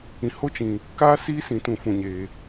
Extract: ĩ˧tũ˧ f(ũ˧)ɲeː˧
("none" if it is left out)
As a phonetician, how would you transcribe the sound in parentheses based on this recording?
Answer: ũ˧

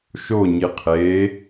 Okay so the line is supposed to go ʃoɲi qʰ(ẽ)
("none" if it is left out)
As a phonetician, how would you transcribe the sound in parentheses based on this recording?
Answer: e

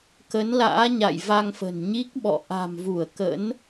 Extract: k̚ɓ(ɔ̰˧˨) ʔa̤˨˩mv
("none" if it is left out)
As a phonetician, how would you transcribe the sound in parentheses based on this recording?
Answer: ɔ̰˧˨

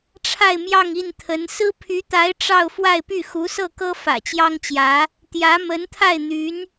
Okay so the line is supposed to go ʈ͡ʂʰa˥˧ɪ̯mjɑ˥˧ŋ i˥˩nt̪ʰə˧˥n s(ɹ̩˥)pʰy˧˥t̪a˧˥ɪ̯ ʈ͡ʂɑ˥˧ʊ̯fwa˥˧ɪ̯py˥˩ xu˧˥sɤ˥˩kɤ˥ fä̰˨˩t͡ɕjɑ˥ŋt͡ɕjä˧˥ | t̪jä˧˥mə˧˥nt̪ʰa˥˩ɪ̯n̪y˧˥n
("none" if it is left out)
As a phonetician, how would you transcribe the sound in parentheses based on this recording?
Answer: ɹ̩˥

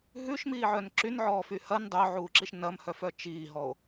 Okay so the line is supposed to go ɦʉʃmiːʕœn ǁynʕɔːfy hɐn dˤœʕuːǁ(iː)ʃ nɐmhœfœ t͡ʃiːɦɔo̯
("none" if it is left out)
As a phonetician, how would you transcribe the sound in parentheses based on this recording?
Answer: i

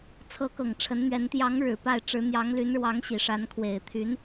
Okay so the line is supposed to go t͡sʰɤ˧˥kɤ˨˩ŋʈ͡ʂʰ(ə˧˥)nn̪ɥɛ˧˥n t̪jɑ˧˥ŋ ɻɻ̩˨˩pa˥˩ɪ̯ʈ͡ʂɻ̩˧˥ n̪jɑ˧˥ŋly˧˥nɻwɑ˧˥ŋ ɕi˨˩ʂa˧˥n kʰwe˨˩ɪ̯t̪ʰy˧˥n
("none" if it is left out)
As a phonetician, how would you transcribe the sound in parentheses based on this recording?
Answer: ə˧˥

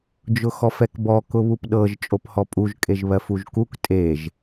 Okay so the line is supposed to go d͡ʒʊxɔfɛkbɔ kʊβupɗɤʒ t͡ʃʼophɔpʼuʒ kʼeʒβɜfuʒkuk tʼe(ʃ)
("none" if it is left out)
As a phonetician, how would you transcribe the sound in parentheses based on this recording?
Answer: ʒ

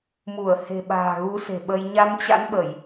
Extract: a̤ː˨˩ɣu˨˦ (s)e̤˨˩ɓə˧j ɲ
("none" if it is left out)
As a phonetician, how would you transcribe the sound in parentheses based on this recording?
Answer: s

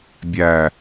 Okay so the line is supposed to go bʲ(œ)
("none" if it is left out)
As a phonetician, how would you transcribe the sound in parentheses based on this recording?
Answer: æ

